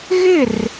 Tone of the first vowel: falling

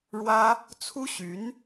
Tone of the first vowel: high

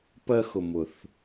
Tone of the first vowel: high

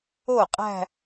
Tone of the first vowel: falling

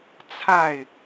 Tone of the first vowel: falling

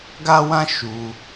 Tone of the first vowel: high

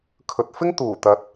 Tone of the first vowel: low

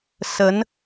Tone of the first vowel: rising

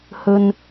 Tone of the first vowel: low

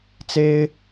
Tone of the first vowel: high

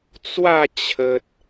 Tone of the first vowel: falling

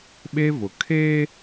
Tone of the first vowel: high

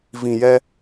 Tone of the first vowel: low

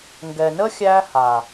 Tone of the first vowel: low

